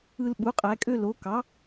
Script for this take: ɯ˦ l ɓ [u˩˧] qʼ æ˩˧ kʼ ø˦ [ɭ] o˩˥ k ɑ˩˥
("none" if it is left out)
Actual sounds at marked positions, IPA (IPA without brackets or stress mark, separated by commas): u˩˥, l